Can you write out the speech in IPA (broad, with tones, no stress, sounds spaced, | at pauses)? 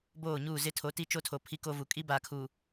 b oː˦˨ ɲ uː˦˨ z ɪ˦ tʰ o˨˦ t i˦ t͡ʃ o˦ tʰ o˨ pʰ i˦ k o˦ v u˨ kʼ i˦ b aː˨ kʰ uː˨